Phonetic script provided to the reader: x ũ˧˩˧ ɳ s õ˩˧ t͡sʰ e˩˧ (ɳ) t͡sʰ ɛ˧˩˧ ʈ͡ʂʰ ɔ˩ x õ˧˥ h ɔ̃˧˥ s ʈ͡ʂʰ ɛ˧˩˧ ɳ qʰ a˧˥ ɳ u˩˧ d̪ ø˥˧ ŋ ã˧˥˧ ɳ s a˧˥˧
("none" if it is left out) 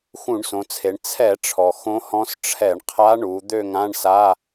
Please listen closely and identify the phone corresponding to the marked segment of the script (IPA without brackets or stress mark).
ɳ